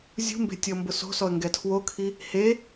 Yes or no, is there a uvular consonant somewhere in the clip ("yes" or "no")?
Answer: no